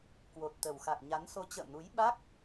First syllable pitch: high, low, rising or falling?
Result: low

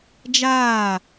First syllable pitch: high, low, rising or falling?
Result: falling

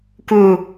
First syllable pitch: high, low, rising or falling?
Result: falling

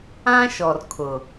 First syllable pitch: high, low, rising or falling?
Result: high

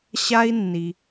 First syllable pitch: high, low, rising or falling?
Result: high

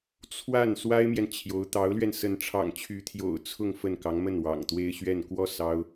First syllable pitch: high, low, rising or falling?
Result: falling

